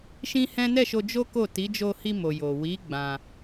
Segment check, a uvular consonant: absent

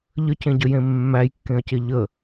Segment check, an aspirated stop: absent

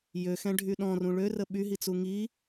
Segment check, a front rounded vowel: present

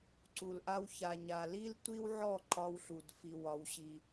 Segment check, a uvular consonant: absent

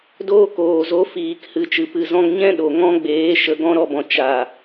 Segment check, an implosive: present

